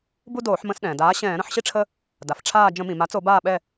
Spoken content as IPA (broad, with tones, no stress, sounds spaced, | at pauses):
b u˦ d oː˧˩˧ ħ m ə̃˧˩˧ s ɗ ɛ̃ː˩ d aː˩˥ ɕ ɛ̃ː˧˩˧ ɾ ə̃˩˥ ħ ɕ i˦ ʈ͡ʂʰ ə˦ | d a˩ f ʈ͡ʂʰ aː˦˨ d͡ʒ ə̃˧˩˧ m ĩ˩ m a˩˥ t͡s o˧˩˧ b aː˦˨ ɓ ɛ˦˨